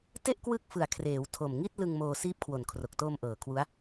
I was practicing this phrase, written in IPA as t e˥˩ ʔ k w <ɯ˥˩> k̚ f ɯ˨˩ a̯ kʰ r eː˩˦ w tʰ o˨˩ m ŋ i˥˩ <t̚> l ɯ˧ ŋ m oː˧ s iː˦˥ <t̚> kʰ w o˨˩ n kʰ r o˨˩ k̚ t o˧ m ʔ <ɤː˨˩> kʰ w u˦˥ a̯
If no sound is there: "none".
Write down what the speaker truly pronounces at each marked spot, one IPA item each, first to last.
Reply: ɯ˦˥, t̚, p̚, ɤː˨˩

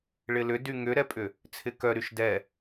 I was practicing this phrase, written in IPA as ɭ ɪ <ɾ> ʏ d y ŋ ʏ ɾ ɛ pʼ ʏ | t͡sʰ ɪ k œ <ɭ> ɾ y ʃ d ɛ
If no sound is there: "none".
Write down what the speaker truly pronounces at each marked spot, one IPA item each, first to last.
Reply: l, none

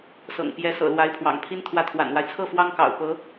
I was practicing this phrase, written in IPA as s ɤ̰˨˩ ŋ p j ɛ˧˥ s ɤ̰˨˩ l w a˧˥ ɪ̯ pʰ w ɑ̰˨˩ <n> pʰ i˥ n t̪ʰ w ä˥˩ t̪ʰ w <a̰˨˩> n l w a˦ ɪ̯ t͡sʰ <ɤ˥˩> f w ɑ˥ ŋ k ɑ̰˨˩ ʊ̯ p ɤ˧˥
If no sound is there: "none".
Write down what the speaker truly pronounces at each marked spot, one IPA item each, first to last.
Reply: ŋ, a̰˨˩, ɤ˥˩

